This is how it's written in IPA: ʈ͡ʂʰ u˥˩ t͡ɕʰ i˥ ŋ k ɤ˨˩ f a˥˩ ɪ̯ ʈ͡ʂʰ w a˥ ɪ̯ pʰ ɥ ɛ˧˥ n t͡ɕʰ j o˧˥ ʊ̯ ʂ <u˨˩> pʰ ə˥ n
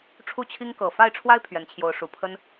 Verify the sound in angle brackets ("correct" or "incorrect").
correct